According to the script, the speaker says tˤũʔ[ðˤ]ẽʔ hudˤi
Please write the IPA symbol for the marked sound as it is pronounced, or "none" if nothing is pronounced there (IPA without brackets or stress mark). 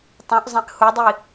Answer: zˤ